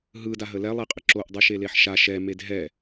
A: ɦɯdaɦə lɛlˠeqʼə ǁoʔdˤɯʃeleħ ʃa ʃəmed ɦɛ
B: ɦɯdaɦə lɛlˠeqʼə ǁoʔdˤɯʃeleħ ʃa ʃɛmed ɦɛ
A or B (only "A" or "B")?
B